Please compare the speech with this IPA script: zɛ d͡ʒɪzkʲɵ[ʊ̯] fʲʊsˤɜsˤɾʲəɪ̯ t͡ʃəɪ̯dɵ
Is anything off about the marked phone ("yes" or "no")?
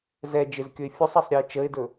yes